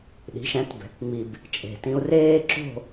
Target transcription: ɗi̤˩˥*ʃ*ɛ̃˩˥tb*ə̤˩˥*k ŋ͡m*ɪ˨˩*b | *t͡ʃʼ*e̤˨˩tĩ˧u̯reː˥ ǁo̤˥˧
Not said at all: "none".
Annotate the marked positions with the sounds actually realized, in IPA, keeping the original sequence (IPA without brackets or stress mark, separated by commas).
ʃ, ɛ̤˩˥, i˨˩, t͡ʃʼ